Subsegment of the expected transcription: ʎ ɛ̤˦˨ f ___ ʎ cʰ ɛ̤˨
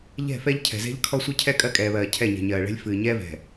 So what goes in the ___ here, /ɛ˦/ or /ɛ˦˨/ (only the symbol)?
ɛ˦